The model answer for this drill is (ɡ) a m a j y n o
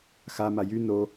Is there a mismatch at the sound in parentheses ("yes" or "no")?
yes